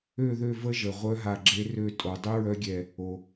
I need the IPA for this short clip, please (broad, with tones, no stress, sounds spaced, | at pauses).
ø˧˩ ð ø˧˩ v ə˧˥ ʒ ə˩ ʁʷ œ˧˥ ɦ a˧˩ ɡ͡ǁ e˧˥ r ø˧˩ tʼ o˩ dˤ y˧˥ ɹ œ˧˥ ɡʲ ɛ˧˩ | o˩